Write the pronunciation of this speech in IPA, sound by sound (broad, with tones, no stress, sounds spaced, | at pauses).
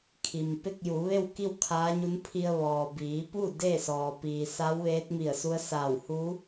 kʰ i˩ m p e˥˨ k̚ j u˩˧ ʋ e˥˨ w k i˥˨ w kʰ aː˧˥ ɲ u˧˥ n pʰ i˧ ə̯ ʋ ɔː˩ b iː˩˧ p u˥˨ d e˥˨ s ɔː˩ p iː˩ s a˧˥ w ʋ eː˧˥ t̚ m i˧˩ ə̯ s u˧˥ ə̯ s aː˧˩ w h u˧˥